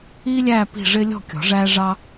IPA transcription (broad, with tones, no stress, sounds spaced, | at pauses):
iː˥ lʲ æː˥˨ p i̤˥˨ ʐ ɪː˥ lʲ ɔ̤˥˨ kʲ ɔ̤˨˩˦ ʐ æː˥ ʐ ɑ˥